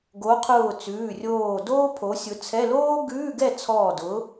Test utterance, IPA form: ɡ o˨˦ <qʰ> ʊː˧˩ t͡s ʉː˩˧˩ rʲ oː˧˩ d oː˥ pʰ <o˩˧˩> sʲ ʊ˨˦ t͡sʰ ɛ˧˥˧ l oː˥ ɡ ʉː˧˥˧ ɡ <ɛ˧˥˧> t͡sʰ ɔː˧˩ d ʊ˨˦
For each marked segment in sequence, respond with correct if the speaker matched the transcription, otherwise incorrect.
correct, incorrect: o˨˦, incorrect: ɛ˥˨

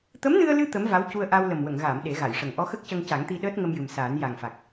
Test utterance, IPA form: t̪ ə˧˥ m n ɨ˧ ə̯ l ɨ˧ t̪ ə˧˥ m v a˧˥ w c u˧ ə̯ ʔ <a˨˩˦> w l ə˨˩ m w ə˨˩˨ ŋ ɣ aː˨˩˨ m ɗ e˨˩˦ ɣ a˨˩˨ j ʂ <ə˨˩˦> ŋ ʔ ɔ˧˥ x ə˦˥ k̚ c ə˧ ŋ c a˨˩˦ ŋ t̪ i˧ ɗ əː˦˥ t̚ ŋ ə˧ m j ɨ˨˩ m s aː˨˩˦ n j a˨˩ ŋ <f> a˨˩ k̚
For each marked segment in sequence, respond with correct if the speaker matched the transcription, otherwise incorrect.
incorrect: a˧, incorrect: ə˨˩, correct

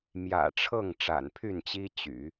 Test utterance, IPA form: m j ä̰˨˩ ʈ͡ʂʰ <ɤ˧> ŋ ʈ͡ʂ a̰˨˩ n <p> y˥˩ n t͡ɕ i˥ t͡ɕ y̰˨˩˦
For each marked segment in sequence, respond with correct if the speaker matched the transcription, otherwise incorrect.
incorrect: ɤ˥˩, incorrect: pʰ

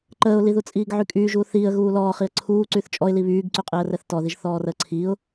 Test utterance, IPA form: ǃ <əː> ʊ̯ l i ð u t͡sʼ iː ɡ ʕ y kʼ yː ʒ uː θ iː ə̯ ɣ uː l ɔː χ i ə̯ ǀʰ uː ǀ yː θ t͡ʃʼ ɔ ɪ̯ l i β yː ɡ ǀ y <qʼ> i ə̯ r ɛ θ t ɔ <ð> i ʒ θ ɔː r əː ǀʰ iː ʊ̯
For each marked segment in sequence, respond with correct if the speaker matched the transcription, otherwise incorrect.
correct, correct, correct

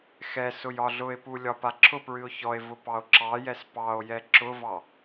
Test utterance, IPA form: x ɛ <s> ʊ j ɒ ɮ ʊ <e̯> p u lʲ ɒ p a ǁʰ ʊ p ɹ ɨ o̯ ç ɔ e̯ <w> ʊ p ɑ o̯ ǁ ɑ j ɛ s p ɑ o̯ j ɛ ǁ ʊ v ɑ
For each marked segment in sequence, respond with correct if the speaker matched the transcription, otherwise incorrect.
correct, correct, incorrect: v

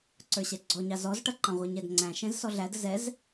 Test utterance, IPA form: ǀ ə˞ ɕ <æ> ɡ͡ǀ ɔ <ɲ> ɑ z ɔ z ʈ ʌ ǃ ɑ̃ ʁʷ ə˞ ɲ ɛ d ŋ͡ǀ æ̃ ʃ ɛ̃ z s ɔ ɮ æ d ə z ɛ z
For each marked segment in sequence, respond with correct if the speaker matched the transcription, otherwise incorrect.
incorrect: ɛ, correct

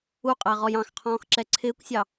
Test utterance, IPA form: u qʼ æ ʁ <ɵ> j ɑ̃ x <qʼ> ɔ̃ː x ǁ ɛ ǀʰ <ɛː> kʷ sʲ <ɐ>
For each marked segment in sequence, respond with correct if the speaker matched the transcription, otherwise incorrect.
incorrect: ɔ, incorrect: qʰ, incorrect: ɪː, incorrect: ɑ

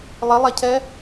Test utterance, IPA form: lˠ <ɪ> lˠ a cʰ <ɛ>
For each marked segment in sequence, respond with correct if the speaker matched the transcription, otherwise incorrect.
correct, correct

